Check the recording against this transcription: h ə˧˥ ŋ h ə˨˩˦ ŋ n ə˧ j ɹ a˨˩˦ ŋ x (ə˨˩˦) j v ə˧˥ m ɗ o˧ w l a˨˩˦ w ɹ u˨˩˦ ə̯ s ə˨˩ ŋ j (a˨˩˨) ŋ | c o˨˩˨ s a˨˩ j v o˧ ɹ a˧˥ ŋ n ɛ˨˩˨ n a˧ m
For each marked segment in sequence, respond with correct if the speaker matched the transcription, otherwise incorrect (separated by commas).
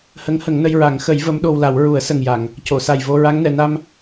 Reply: correct, correct